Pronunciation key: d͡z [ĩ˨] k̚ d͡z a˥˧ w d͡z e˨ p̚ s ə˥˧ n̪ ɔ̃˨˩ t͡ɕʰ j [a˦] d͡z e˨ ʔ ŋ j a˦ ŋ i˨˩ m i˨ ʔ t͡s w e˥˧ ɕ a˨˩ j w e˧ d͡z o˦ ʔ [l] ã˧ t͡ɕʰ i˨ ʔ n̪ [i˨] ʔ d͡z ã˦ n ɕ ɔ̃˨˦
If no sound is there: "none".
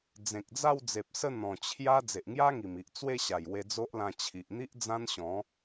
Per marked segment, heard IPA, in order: ẽ˨, a˦, l, i˦

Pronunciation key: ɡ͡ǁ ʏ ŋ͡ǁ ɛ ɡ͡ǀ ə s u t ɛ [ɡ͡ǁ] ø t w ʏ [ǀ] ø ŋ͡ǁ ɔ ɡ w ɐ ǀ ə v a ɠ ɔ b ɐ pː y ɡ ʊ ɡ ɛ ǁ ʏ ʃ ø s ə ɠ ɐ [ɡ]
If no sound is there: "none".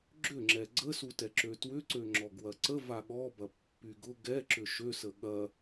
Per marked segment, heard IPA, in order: ǁ, ǀ, none

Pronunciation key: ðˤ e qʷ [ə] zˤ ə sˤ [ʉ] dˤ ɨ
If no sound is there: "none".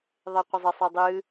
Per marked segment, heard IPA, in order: ə, ʉ

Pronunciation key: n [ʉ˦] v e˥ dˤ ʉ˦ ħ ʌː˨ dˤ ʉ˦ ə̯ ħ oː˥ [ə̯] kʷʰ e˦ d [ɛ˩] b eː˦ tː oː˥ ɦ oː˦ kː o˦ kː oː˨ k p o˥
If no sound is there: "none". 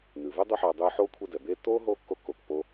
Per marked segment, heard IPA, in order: ʉ˩, none, ɛ˩

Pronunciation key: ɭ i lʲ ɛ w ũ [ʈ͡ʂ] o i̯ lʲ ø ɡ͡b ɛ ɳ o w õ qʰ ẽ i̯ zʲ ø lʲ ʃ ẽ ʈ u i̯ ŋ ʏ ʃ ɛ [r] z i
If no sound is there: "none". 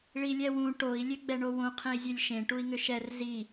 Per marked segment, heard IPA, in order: ʈ, r

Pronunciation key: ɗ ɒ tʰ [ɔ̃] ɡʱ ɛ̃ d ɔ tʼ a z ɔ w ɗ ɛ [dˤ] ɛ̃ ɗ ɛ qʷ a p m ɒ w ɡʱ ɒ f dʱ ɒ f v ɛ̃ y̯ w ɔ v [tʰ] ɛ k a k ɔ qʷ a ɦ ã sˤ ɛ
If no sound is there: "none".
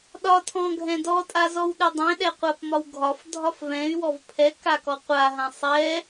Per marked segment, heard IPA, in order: ɔ̃, dˤ, pʰ

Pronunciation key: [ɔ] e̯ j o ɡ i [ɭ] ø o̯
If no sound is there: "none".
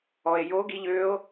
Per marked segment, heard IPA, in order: ɔ, ʎ

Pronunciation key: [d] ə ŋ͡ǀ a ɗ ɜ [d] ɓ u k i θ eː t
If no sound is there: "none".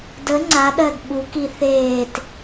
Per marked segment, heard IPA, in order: d, d

